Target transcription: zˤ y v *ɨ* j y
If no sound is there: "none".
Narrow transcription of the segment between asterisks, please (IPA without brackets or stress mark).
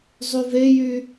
e